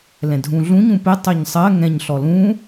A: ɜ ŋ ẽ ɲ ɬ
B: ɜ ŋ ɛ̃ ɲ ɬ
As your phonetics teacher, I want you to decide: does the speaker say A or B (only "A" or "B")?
B